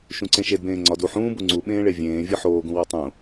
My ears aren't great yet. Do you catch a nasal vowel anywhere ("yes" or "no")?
yes